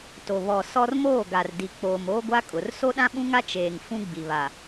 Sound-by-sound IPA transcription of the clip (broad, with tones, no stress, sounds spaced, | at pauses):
t o˨ β ɔ˨ s ɔ˦ r m oː˦˨ ɡ a˨ r d i˨ k͡p oː˨ m oː˦ ɡʷ a˦ kʼ ʊ˨˦ r s o˦ ɗ ã˦ ɓ ũ˦ ŋ a˦ t͡ʃ eː˨ ŋ f ũ˦ ɡ͡b i˨ β a˨